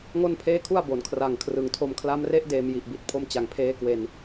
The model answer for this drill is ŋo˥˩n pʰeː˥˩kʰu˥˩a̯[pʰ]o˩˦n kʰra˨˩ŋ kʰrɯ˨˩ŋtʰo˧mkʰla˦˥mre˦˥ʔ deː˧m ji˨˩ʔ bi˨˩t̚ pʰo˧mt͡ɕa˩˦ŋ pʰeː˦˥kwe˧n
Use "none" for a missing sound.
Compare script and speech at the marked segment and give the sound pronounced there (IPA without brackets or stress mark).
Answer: b